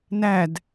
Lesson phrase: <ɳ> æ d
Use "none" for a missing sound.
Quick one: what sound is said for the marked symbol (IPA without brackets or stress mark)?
n